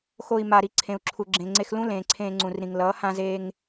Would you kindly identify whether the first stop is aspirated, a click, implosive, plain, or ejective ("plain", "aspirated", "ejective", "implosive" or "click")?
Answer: click